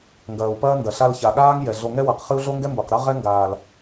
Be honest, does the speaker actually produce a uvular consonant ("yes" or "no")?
yes